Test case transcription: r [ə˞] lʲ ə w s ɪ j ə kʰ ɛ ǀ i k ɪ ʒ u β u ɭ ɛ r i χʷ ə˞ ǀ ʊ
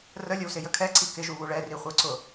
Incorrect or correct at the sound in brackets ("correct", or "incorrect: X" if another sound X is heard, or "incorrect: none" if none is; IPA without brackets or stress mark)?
incorrect: ə